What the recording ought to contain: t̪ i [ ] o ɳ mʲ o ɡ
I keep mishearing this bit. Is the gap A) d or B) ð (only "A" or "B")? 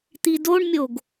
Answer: A